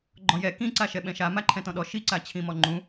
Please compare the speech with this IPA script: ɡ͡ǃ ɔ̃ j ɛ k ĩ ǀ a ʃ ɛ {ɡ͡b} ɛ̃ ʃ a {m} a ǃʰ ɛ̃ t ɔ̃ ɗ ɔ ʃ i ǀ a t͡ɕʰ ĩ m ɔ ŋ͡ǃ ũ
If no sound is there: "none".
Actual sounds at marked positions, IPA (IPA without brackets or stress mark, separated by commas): ɓ, m